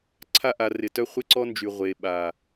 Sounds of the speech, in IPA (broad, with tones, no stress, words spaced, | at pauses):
ǀʰa˦ʔa˨ rɪ˨tœ˦ χʷɪ˦ǀɔ˦nd͡ʒy˨ ʁʷe˨ɓa˨